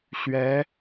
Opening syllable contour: rising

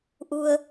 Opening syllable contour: low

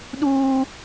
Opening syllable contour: high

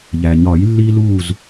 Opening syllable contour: low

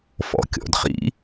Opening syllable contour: low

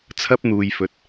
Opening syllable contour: high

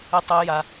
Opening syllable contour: high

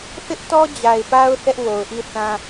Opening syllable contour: high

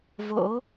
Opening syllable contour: rising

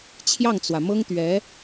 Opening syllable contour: falling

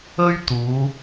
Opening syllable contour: high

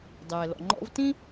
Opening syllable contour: low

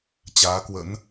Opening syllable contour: rising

